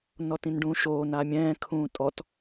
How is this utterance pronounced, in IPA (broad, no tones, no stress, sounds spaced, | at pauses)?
n ɔ t ĩ n ɖ ũː ʃ oː n a mʲ ɛ̃ː kʰ ũː tʼ ɔ t